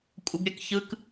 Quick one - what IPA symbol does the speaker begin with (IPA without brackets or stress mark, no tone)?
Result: kʷʼ